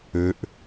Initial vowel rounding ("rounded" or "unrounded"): rounded